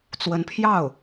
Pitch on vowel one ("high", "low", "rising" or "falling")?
rising